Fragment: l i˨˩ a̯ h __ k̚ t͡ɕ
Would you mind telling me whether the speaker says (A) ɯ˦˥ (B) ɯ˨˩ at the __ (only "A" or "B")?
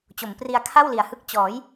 A